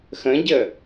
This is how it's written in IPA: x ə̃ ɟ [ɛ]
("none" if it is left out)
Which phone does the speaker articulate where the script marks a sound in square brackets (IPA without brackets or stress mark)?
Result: ə